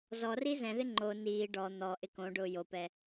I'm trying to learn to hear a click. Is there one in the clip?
yes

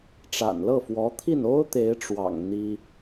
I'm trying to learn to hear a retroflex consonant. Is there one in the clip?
yes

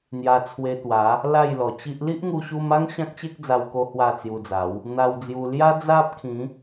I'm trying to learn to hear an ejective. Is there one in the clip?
no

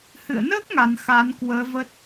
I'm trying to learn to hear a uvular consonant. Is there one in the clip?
no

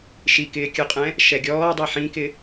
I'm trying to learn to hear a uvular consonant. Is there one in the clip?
yes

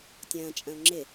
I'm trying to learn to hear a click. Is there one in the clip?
yes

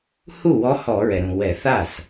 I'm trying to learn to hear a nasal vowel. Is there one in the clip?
yes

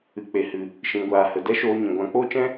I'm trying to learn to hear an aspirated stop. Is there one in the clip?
no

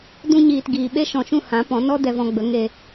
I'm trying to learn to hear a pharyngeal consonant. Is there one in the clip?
no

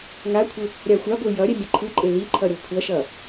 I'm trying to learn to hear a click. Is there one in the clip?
yes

